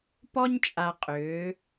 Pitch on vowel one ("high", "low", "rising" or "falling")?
high